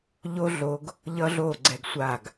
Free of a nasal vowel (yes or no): yes